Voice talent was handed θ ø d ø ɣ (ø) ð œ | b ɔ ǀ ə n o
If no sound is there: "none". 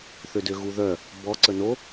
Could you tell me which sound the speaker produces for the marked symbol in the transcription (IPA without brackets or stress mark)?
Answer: u